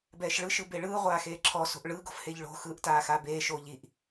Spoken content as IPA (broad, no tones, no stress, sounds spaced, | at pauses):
b ɛː ʃ ɭ ɯ ʃ ɯ b e ɭ ɯː ʁʷ aː x eː ǁʰ ɔ s o̤ ʔ ɭ ɯ ɡ o̤ f h e ʎ ɭ o̤ x ɯː ʔ t aː x a b eː ʃ oː ʎ i ʔ